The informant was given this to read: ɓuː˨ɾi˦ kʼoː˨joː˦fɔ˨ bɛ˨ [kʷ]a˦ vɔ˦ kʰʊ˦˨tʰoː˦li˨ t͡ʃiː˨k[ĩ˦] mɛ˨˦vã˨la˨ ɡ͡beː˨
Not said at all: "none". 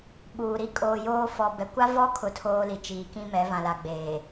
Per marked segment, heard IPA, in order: kʷ, ĩ˦

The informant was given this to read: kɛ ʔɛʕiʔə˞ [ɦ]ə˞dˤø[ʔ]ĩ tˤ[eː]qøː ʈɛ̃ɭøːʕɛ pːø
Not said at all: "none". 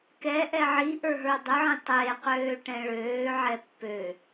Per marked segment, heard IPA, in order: ɦ, ʕ, eː

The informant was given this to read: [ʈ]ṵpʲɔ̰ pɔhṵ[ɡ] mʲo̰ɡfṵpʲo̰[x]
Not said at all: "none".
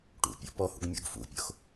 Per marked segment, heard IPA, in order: ʈ, ɡ, x

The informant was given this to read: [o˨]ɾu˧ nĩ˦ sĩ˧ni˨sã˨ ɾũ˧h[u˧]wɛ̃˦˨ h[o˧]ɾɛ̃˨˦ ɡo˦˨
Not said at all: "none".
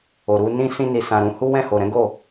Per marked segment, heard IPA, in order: o˨, u˦, o˨

